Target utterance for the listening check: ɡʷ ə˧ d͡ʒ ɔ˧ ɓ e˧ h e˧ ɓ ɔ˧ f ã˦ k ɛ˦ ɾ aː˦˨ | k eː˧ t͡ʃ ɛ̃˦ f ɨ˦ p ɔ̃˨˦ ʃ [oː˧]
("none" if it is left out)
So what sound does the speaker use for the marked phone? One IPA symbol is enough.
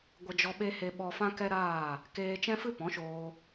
oː˧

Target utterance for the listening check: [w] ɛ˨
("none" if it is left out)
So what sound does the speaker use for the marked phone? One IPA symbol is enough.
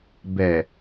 b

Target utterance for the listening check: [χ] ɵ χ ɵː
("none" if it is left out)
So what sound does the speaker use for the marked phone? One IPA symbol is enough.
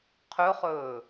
qʰ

